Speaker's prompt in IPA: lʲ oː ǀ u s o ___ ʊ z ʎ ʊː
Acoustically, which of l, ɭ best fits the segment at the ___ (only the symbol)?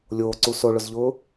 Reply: ɭ